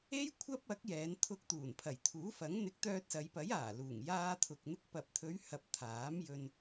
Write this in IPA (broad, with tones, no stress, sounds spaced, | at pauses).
e˥ j kʷʰ ɐ˥ p̚ ɐ˨˥ k̚ j ɛː˨˧ n t̪ʰ ʊ˧ k̚ t̪ uː˨˩ n pʰ ɐ˨˩ j t̪ʰ uː˨˥ f ɐ˨˥ ŋ n̪ ɪ˨˥ k̚ t̪ œː˧ t̚ s ɐ˨˧ j p ɐ˨˥ j aː˨˩ l uː˨˩ ŋ j aː˧ t̪ʰ ʊ˨ k̚ n̪ ɪ˧ k̚ p ɐ˨ p̚ t̪ʰ ɵ˨˧ ɥ h ɐ˨ p̚ t̪ʰ aː˨˥ m j ɵ˧ n